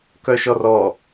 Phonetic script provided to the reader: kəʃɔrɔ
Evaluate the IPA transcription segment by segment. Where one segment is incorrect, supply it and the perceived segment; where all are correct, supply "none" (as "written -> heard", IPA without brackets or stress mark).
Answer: ə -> œ